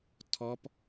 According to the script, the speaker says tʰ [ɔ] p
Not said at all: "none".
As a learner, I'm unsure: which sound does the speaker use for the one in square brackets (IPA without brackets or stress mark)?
ɔ